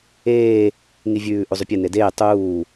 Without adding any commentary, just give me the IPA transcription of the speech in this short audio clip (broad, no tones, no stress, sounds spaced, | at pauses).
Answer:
eː | ŋ i vʲ ʉː ʔ u zˤ ʉ pʲ ɛ n e d eː tˤ uː